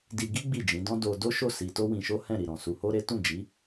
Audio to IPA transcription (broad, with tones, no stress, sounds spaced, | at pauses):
d i˧ ɡ i˦ ɡ͡b i˦˨ d͡ʒ ĩ˨˦ d ɔ̃˦ d o˧ d o˦ ʃ o˦˨ s i˧ t o˦ w ĩ˧ ʃ o˦ h ɛ̃˦˨ ɾ i˨ ɾ ɔ̃˨ s u˧ h o˦ ɾ e˦ t ũ˦˨ d͡ʒ i˨˦